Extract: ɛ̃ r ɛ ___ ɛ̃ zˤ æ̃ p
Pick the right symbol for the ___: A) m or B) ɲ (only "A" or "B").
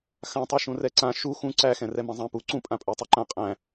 A